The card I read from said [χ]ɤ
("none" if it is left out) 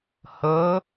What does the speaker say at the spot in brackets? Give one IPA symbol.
h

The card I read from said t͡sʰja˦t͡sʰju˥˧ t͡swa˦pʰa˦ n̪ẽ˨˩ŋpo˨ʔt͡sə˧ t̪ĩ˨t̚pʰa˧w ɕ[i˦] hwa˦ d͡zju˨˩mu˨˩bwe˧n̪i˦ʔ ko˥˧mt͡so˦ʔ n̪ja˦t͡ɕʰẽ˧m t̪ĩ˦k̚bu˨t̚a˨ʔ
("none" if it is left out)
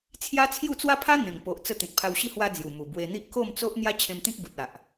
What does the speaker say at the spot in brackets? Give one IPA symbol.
i˦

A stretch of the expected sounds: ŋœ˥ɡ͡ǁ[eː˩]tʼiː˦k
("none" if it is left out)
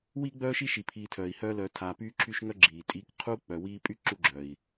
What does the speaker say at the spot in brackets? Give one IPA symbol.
iː˩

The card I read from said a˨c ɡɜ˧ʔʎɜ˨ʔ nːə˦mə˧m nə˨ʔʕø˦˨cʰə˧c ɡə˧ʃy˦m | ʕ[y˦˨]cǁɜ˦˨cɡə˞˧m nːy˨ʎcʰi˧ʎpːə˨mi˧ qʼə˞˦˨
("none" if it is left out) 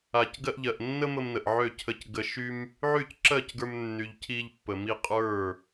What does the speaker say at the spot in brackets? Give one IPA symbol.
y˦˨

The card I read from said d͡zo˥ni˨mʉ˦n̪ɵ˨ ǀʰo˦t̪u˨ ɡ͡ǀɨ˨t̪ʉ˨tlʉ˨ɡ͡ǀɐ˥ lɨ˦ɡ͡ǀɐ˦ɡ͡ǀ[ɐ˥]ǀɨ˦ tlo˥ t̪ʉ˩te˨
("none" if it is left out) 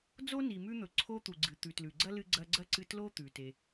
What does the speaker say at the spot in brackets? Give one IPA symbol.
ɐ˥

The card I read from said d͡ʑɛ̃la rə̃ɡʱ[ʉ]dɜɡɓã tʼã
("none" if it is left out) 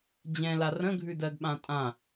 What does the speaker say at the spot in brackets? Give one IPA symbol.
ʉ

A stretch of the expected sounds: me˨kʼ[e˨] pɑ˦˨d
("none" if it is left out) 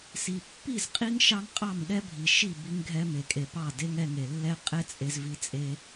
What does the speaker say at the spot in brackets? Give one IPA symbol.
e˨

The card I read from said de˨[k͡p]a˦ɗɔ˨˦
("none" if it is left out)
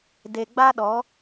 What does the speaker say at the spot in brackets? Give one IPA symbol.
ɡ͡b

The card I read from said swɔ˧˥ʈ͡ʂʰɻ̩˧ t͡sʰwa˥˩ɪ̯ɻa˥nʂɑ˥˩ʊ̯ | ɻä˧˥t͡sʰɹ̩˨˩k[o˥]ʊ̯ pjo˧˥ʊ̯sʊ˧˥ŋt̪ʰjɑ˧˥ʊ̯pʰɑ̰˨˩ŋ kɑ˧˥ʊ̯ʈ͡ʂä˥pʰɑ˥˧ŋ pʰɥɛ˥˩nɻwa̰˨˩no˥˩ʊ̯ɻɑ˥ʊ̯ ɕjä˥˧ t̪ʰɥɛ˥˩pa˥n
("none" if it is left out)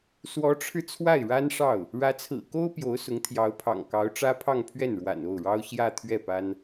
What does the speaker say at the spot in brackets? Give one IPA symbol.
o˥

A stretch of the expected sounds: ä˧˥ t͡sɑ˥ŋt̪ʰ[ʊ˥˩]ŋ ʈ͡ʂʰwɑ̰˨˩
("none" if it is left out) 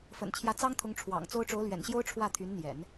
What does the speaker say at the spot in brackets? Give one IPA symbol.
ʊ˧˥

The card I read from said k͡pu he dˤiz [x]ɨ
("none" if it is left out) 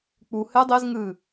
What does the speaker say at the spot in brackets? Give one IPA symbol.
ŋ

